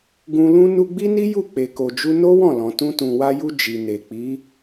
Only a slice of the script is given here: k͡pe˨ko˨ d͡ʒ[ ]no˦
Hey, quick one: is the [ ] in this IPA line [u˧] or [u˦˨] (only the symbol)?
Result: u˧